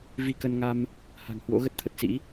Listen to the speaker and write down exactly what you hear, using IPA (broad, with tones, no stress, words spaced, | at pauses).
vi˧kə˧nŋa˧m | ha̤˨˩ŋhwo̰˧˥ ɣə˦˥t̚t̪ʰə˨˩t̚sḭ˧˥